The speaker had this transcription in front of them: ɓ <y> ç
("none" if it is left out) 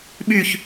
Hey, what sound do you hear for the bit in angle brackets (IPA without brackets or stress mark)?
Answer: y